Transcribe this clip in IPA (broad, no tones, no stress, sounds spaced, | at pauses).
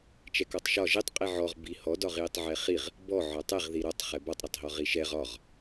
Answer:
t͡ʃ ɛ k ɔ tˤ ʃ ɒ ʒ i tˤ qʼ i ʕ ɔ ʁ b i h ɔ d ɒ ʁ j i tˤ ʕ ɛ χ i ʁ | b ɔ ʕ ɒ tˤ ɛ ʁ ð i ɾ ɒ tˤ χ ɛ b ɒ tˤ ɾ ɒ tˤ ɦ ɔ ʁ i ʃ ɛ ʁ ɒ ʁ